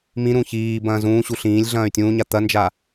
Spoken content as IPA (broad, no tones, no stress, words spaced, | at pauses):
mĩɾũ çiː bɐ̃ːzũːɕu ɬĩːlʲ ɮɐ̃ːy̯tʲũːɲa t̪ɐnd͡ʒa